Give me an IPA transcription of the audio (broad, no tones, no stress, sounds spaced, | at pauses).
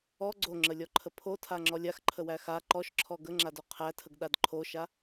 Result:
ɔ ɡ͡ǀ o ŋ͡ǁ ə lʲ ɔ ǃʰ ə pʰ o tʰ a ŋ͡ǁ ɔ lʲ a x ǃʰ ə w æ x a ǃ ɔ ʃ ǁʰ ɔ ɡ ə ŋ͡ǁ a d o qʰ æ tʰ ə ɡ ɗ a d ǃʰ o ʃ a